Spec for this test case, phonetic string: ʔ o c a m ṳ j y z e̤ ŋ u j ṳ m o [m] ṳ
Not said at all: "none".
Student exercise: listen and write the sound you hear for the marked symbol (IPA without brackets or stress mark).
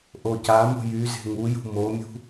mʲ